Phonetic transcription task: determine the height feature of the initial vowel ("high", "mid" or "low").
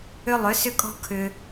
high